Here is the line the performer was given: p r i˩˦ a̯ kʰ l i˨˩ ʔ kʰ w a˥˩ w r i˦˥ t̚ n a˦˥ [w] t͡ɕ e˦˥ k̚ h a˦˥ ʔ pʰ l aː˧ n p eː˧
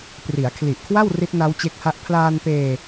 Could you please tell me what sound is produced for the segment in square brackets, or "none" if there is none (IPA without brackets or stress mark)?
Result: w